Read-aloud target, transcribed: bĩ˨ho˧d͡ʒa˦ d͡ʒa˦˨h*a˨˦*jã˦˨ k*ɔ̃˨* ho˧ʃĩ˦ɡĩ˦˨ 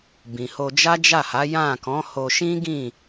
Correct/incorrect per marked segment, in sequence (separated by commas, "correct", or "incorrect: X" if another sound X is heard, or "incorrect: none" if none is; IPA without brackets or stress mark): correct, incorrect: ɔ̃˨˦